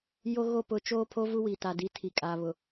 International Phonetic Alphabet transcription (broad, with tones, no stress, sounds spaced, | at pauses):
j o˦ ɣ o˦ p ʊ˨˦ t͡ʃ oː˦ pʰ o˦ v u˦ w i˨ t a˨ d i˨˦ tʰ i˨ kʼ aː˨ β ʊ˨